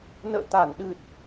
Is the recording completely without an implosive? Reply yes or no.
no